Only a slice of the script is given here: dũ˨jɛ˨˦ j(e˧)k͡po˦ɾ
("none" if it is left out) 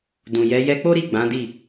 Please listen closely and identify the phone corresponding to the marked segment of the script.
ɛ˧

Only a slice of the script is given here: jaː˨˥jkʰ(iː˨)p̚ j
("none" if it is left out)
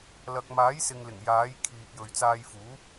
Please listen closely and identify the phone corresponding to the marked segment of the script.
iː˨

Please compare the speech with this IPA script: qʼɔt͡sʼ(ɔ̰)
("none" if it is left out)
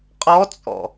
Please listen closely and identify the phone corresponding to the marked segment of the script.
ɔ̰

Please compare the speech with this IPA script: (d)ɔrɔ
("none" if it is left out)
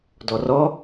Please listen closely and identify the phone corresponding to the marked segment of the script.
d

